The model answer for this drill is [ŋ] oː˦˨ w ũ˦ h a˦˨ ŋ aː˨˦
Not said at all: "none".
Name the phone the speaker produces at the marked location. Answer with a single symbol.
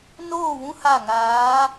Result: n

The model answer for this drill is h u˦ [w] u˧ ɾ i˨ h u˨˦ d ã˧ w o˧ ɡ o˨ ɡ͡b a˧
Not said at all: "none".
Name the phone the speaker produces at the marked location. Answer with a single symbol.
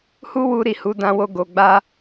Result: w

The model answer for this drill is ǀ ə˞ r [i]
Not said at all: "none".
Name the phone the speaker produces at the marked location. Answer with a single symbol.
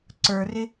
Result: ɪ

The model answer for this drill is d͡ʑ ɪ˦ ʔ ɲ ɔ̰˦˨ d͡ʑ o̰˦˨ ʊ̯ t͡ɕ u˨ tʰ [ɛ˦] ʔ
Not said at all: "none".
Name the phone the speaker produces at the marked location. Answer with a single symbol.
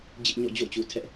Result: ɛ˦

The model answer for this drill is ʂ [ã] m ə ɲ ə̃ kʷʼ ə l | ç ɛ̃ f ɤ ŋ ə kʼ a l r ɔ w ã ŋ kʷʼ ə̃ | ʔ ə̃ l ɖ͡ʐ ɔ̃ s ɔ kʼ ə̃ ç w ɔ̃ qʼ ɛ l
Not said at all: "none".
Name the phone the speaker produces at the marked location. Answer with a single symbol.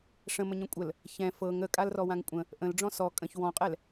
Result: ə̃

